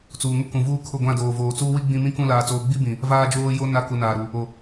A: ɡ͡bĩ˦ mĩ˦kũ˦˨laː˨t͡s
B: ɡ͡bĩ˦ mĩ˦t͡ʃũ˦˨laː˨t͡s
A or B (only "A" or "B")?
A